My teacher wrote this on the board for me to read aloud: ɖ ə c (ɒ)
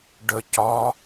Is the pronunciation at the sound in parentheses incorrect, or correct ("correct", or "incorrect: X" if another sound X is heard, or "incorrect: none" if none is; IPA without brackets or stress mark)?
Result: correct